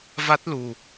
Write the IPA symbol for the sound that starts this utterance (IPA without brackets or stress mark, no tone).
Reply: v